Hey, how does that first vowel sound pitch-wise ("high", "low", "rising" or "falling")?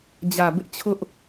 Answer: low